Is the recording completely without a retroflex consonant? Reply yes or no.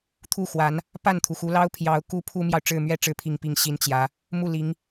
no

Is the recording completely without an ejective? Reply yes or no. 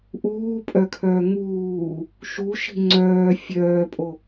no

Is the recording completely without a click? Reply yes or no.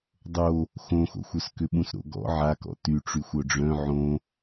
yes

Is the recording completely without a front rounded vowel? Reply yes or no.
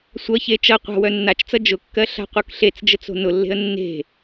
no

